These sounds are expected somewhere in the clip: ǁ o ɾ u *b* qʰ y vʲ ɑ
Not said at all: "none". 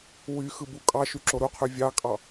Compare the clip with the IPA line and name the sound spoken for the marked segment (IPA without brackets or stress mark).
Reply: none